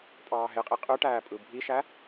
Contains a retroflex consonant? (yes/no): yes